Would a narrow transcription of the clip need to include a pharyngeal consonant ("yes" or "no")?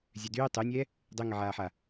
yes